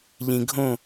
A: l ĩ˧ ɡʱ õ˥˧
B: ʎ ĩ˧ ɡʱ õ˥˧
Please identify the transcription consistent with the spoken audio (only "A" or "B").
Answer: B